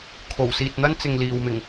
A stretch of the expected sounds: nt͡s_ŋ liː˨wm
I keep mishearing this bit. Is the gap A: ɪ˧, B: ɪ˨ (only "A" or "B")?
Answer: B